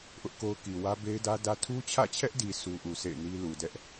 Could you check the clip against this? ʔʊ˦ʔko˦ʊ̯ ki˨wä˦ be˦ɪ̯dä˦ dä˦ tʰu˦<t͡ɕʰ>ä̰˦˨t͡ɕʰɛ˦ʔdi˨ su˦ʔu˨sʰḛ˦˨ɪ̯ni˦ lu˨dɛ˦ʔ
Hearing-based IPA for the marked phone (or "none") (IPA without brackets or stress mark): t͡ɕʰ